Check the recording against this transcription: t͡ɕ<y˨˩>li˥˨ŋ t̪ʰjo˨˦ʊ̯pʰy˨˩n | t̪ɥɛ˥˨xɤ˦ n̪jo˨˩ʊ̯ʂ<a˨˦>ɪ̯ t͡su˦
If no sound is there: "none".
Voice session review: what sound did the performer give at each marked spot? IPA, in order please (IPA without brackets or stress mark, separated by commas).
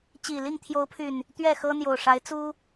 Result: i˨˩, a˨˦